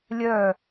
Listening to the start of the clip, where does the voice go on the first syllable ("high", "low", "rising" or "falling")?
falling